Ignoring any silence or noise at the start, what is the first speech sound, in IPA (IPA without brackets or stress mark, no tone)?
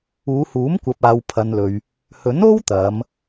uː